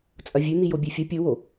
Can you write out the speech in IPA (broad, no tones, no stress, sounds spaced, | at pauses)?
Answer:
t͡sʼ ɐ vʲ ʉ n̪ i j o bʲ e fʲ ɐ pʲ o w o